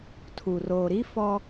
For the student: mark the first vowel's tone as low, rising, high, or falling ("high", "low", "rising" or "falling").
low